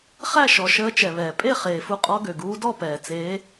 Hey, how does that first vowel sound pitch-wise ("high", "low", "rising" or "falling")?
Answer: falling